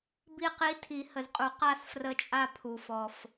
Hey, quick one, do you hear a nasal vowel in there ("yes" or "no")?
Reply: no